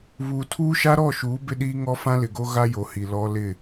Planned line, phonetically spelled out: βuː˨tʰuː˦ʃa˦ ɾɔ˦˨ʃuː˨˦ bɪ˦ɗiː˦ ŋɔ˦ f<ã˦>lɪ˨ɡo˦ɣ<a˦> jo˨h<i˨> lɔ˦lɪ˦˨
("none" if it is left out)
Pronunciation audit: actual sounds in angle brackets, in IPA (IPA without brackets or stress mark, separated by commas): ã˦, a˦, i˨